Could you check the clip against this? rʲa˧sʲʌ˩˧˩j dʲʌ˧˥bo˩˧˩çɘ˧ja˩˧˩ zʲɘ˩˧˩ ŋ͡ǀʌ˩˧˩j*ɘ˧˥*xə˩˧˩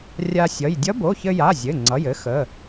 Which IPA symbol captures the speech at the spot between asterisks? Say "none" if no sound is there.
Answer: ɘ˧˥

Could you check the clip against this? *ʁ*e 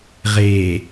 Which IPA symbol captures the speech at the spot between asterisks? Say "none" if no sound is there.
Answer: ʁ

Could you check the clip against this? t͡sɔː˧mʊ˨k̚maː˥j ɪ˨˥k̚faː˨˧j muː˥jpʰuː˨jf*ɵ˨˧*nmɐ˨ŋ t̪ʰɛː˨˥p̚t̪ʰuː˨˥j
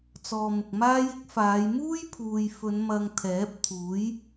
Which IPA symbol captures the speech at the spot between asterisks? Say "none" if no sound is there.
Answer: ɵ˨˧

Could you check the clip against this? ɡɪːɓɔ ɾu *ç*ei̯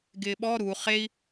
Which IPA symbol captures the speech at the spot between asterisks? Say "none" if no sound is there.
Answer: χ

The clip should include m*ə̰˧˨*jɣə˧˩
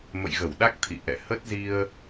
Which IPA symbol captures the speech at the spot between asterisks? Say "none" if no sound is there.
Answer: ə̰˧˨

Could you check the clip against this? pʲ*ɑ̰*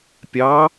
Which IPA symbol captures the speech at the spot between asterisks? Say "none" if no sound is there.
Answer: ɑ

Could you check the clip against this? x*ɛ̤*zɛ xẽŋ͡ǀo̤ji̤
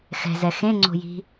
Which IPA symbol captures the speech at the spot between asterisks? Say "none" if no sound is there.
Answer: ɛ̤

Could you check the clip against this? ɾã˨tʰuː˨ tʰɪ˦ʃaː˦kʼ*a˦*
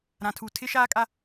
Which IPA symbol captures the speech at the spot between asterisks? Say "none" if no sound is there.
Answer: a˦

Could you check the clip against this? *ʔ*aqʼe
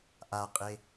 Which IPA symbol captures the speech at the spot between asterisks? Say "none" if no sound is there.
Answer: ʔ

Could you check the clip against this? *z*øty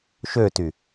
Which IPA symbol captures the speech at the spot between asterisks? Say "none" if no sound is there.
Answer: ʃ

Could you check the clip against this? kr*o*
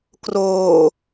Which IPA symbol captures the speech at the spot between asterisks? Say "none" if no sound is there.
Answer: oː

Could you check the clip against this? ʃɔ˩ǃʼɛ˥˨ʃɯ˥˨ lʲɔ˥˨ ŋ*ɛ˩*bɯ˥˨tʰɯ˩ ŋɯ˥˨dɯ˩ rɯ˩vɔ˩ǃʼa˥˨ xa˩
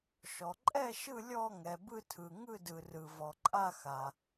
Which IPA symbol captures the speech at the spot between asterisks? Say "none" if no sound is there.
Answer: ɛ˩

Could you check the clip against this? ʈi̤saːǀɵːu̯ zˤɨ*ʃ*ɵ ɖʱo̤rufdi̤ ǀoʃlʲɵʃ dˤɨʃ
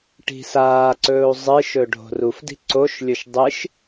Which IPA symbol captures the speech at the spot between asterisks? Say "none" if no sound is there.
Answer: ʃ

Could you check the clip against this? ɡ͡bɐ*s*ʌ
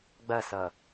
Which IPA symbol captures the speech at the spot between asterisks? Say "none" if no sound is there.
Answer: s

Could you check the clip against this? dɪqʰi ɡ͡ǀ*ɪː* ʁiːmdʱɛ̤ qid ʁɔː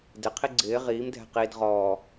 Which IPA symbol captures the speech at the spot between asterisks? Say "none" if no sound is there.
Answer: ɪː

